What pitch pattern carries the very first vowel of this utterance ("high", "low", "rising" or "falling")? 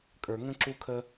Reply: low